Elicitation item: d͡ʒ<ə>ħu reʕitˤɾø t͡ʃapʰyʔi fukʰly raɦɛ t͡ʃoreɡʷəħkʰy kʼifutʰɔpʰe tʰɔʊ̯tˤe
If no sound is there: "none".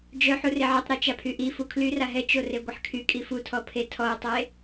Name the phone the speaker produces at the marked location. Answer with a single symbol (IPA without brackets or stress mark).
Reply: œ